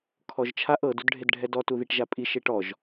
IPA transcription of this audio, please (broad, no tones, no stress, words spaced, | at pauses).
kʰɔʒt͡ʃʰaʔ ɤd udɖʱedɖʱɛdɔ tuðiʈʒapʼi ʃeʈɔʒ